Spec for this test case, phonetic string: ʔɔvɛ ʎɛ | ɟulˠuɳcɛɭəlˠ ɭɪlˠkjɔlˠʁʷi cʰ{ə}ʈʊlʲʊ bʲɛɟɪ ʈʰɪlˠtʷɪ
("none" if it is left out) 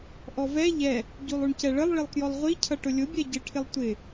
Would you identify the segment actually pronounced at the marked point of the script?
ʌ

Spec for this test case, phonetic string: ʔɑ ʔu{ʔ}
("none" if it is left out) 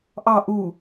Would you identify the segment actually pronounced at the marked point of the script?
none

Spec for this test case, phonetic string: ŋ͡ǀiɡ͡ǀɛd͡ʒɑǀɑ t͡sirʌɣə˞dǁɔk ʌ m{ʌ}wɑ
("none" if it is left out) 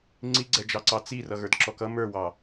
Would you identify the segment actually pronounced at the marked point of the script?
ə˞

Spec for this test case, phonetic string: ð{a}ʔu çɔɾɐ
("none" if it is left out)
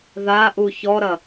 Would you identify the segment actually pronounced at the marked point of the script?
a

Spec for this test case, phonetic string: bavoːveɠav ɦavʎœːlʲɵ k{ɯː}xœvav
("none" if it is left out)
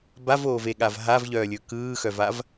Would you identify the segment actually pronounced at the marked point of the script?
ɯː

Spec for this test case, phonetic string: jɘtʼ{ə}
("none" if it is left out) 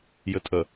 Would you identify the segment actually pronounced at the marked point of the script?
ə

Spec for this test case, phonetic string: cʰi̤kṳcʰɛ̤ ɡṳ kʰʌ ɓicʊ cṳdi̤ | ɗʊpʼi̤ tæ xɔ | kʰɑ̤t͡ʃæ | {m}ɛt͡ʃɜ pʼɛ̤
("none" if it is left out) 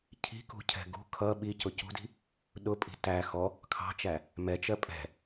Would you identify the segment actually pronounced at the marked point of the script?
m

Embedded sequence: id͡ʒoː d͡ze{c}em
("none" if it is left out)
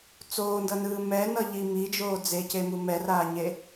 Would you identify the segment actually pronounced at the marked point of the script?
c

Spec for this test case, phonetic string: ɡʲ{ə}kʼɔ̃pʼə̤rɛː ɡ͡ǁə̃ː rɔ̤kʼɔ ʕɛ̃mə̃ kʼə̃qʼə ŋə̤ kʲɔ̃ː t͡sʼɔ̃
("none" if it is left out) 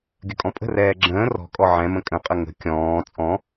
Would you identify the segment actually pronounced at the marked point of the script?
ə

